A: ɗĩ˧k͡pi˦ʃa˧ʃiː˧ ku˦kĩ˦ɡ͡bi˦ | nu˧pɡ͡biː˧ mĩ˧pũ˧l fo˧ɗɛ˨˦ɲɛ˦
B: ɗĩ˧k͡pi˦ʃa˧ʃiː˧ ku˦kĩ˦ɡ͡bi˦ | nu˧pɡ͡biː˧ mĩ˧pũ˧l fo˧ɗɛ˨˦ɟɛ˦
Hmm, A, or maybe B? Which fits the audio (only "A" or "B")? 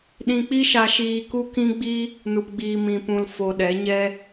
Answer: A